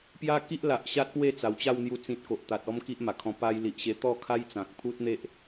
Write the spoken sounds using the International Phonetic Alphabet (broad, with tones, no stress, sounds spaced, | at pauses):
p j a˦ k i˦ ʔ l a˨ ʔ ɕ a˦ t̚ p w e˥˧ t͡s a˨˩ w t͡ɕ a˥˧ w n̪ j u˧ t͡s ĩ˨ t̚ k o˨ ʔ t̪ a˨ t̚ ɔ˦ m k i˦ ʔ m a˨˩ kʰ ɔ̃˧ p a˧ j l i˨ ʔ ɕ e˧ t̪ ɔ˥˧ kʰ a˦ j t͡s ã˨ k̚ pʰ u˦ t̚ n̪ e˦ ʔ